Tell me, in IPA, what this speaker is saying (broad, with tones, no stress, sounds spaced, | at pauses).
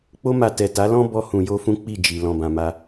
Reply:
k͡p o˦ m a˧ t ɛ˨ t a˨˦ l ɔ̃˦ b ɔ˧ h ũ˨ j o˧ f ũ˦ k͡p i˦˨ d͡ʒ i˨ l ɔ̃˨ b ã˨ m a˧